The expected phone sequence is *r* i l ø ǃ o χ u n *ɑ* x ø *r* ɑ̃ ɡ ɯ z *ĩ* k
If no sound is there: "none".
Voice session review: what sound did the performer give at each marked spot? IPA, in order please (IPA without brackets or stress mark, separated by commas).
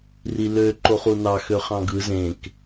r, ɑ, χ, ẽ